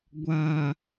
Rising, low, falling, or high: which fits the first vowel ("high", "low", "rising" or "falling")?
low